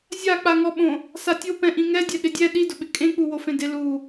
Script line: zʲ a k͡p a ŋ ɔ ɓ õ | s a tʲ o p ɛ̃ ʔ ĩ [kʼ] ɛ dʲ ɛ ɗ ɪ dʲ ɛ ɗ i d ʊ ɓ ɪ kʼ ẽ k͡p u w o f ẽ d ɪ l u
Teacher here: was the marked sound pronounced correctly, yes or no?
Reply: no